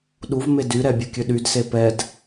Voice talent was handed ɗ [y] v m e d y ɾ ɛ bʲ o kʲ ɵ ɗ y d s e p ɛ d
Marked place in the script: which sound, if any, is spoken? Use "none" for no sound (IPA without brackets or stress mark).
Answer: u